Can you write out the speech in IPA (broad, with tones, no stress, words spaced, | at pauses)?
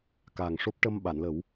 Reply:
kaː˨˩ŋʂo˦˥p̚ʈə˧m ɓa˨˩˨nlə˨˩˦w